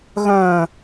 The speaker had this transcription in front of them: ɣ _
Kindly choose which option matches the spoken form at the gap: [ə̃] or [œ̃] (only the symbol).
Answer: œ̃